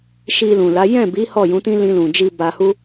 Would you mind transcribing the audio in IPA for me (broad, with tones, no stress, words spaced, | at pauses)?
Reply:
ʃi˧lũ˨ la˨˦ jɛ̃˦˨bi˨˦ hɔ˦˨jũ˨˦tĩ˦ lĩ˧lũ˨d͡ʒi˧ ba˧hu˦